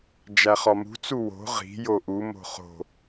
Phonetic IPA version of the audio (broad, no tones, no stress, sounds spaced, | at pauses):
d͡ʒ æ χ ɒ m ṳ t͡s u w o̤ ʁ i̤ j o ʔ u m o̤ χ o̤